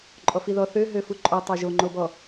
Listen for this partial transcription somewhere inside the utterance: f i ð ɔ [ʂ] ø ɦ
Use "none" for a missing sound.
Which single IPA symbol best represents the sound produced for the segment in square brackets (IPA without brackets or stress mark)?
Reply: θ